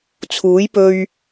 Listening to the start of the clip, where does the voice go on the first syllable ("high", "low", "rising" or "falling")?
rising